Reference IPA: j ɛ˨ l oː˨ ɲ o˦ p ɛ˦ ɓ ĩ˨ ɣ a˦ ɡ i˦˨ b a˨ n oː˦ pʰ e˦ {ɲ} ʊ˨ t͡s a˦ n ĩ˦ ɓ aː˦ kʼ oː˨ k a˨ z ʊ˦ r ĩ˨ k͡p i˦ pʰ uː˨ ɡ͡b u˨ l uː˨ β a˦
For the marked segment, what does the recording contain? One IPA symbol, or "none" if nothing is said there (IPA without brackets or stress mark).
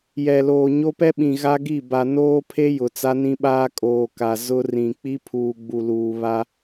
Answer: j